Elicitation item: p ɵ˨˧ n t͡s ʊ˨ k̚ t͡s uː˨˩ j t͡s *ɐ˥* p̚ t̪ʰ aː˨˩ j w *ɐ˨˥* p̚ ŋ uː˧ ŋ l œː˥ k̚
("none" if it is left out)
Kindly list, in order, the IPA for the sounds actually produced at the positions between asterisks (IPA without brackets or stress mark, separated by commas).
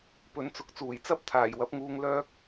ɐ˥, ɐ˨˥